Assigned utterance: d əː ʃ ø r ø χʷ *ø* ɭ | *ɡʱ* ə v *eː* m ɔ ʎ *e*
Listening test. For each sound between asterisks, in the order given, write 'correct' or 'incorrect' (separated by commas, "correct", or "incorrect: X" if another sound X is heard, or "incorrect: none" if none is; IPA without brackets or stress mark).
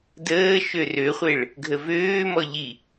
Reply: incorrect: e, correct, incorrect: øː, incorrect: i